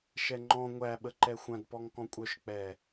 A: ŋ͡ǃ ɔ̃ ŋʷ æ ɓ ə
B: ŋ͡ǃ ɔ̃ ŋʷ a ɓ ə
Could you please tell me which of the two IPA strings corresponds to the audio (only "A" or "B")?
A